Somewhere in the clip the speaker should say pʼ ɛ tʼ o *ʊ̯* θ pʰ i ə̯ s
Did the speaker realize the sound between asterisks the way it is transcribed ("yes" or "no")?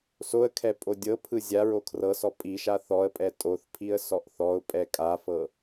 no